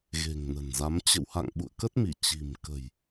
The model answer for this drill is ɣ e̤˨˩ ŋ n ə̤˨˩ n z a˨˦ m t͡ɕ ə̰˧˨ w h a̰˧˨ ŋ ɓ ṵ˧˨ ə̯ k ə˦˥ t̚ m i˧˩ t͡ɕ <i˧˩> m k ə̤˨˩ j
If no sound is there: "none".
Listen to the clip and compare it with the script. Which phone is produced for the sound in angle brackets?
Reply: i̤˨˩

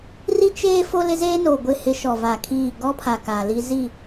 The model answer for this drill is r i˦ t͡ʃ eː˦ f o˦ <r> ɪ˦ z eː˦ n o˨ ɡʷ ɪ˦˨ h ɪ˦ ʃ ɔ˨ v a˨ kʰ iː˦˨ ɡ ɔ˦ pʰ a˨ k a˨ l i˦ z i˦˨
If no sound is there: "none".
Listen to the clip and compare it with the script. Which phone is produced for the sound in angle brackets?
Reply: l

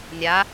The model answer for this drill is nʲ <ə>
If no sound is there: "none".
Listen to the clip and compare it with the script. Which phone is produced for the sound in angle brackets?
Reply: a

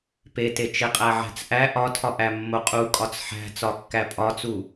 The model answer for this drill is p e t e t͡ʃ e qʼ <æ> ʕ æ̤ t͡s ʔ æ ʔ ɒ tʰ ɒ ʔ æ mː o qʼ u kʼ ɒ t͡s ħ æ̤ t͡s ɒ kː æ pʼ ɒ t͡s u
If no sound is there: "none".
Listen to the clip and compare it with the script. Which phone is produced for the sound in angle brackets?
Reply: æ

